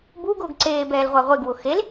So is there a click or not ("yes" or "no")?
yes